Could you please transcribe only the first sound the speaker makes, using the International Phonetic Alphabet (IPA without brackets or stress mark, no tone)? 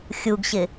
xʲ